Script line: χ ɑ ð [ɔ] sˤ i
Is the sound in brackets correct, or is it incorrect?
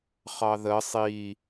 incorrect